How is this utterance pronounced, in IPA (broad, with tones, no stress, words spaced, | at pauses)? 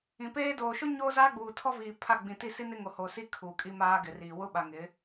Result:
ĩ˨peː˦ doː˨ʃʊ˦ ɲoː˦zaː˦ɡ͡buː˨tʰɔ˦ viː˨pʰa˦˨ɡ͡bĩ˨ ti˦˨si˦nɪ˦ŋo˨ ho˨si˦ kʰuː˨kʼi˦maː˦ ɡɪ˨riː˨ wʊ˦ɓa˨ ŋɪ˨˦